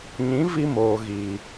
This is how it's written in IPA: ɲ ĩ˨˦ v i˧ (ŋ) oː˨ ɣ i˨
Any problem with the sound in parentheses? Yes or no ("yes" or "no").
yes